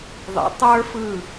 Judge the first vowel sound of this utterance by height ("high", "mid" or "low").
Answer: mid